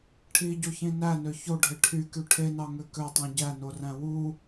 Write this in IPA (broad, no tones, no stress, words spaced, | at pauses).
ʈʰiɟoçĩ nænø çoɖʱe ʈʰyky ʈʰenɑŋø køtˤɑ̃ ɟænoræ̃ wu